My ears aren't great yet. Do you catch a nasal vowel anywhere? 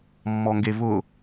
no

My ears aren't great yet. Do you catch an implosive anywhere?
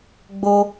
no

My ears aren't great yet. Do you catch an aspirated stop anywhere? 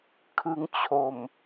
yes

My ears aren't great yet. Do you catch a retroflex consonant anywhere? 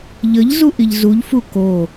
no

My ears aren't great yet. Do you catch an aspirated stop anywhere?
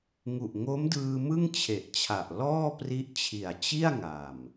yes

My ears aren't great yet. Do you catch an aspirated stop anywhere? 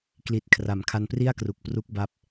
yes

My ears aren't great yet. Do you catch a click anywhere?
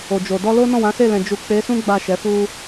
no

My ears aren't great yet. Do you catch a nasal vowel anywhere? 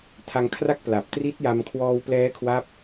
no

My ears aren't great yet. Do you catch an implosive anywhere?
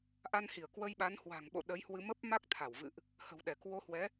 yes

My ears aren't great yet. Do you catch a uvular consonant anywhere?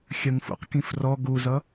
yes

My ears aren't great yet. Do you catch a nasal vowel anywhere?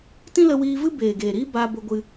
yes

